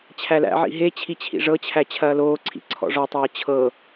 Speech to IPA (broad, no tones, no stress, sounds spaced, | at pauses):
t͡ɕʰ æ l æ̰ ʕ ḭ ɦ e t͡ɕʰ i t͡ɕʰ ḭ ʐ ɤ t͡ɕʰ æ t͡ɕʰ ɐː l oː ǀʰ ḭ ǀʰ ɔ̰ ʐ ɔ tˤ ɤː t͡ɕʰ ɤ